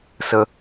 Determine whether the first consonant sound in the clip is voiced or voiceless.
voiceless